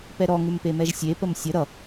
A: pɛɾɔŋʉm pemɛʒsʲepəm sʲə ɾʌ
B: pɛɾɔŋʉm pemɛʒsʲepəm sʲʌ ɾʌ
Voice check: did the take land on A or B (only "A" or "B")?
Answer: A